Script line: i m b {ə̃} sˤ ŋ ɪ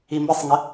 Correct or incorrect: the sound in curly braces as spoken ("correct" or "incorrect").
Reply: incorrect